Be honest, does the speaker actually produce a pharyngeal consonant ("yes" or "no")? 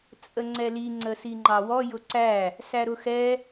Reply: no